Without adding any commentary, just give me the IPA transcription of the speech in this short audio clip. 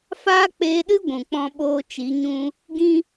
faː˦k͡peː˧ɗɨ˦ ɡʷũ˨k͡pɔ̃˧ ɓoː˦t͡ʃi˨˦ɲũ˦ | ɡĩ˦

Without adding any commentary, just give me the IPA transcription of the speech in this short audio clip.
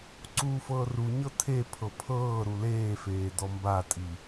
ǀuːfɤːruɲɤ tʰepʰɤ pʰɤː ɾuleːfeː dɔmbatʼi

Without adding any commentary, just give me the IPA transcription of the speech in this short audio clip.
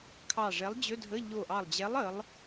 kʰɑ˧˩ʐɛ˨˥lˠd͡ʑɵ˧˥˧dʱə˧˥˧ ʎo˧˩ʔɑ˧˩lˠd͡ʑɛ˨˥lˠ ə˨˥lˠ

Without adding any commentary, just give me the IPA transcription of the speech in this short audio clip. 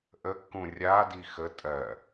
ʔəkːũ rʲadi xə tʼɜ

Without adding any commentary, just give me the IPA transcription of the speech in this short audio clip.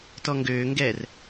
tɔŋɡøːŋɡɛːr

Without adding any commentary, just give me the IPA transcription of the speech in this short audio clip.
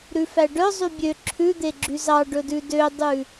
ɾʉfæɖœ zˤybʲø ǁʰʉd̪eɡ͡ǁy zɑɖɵdʉ dødˤʉ

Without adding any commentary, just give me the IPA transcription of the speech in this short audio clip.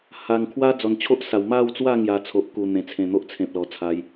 ha˨˩ŋkʰwa˦ d͡zɔ˨˩nt͡ɕʰo˦ʔsa˨˩w ma˥˧wt͡swa˥˧ŋja˨˩ t͡sʰo˨ʔku˨˩ n̪ẽ˨˩t͡sʰẽ˨˩n̪o˦ʔt͡sʰẽ˨p̚ lɔ˨˩t͡sʰa˨˦j

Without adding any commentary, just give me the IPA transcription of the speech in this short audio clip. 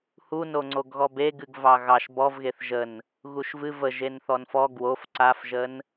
hunoŋ͡ǀoɡɣɔ be ɡɨɡvɑɣɑʃ bɔvɣeθ ʒən | ɣuʃvɨ və ʒenθɔnfɔ ɡwof ǀafʒən

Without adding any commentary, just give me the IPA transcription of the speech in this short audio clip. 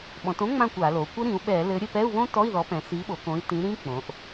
ɓɔ̃˩˧tõ˦˥ŋ͡mã˦˨ kʷa˧˩˧lo˩˧ kʷɘ˦˥ɾĩ˩˧u̯ɓɛ˧˩˧lɘ˨˥ ɾʲɘ˦˨pɛ˧˥˧u̯βõ˦˥ tɔ˧˥˧i̯ðɔ˨˥ pɛ̃˩˧si˨˥ɓo˩˧kõ˨˥i̯ tĩ˨˥ɾĩ˦˥ k͡põ˩˧ʔ

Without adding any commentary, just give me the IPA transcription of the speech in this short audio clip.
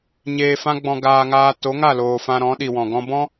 ɲeː˧fã˦ɡ͡bɔ̃˧ ɡaː˧ŋaː˧ to˨˦ŋa˦˨loː˨ fã˧ɾɔ̃˨˦ɗi˨wɔ̃˨ ɡɔ̃˧bɔ̃˦

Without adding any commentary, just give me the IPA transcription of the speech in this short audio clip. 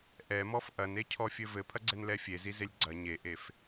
ʔɛmɔf ʔɐnecʰɔfʲɘ vɘpʰɐɡ͡ǀɛnlɛ fʲezizelʲ ɡ͡ǀɐ ɲeʔef

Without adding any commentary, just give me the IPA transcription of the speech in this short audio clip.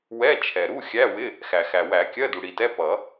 wɛ˧˥˧ t͡ʃʰɛ˩ɾu˧˥˧xʲæ˧˥˧wɪ˧˥˧ | xæ˩xæ˩wæ˨˩˦ kʲɜ˧˥˧du˩ɽi˩tɛ˧˥˧ pʌ˨˩˦

